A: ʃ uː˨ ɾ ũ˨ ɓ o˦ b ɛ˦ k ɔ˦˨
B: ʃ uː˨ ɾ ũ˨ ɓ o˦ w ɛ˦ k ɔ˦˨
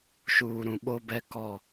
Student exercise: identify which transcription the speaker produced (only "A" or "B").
A